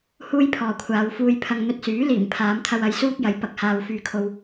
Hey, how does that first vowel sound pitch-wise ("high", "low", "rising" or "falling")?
high